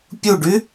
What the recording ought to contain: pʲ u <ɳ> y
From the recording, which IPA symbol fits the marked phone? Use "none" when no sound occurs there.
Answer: ɖ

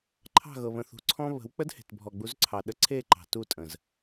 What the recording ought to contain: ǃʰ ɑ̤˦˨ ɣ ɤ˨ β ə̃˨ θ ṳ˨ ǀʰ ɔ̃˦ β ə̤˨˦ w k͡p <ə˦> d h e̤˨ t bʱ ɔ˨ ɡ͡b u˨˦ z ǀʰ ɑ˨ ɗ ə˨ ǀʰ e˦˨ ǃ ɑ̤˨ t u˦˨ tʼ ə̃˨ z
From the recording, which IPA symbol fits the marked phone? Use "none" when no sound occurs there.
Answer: ə˦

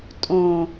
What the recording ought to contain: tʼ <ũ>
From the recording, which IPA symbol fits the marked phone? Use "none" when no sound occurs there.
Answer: õ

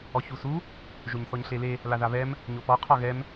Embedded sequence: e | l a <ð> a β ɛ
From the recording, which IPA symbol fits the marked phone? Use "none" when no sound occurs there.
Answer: ð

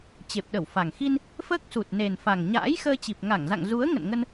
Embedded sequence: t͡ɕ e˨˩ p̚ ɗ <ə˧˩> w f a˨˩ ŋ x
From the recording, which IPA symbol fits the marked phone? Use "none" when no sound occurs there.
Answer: ə˧˩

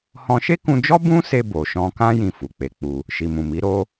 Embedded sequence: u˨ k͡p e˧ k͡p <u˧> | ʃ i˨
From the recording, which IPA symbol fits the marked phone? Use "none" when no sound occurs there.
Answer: u˧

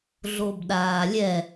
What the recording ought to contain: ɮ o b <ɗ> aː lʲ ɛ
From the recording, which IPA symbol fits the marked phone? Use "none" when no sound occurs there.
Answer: ɗ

